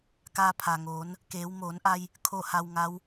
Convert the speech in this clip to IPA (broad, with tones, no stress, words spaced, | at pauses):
kaː˧pʰa˩ŋoː˩˧n | keː˩˧w moː˩˧nʔa˧j | kʰo˥˨ha˧wŋa˧˥w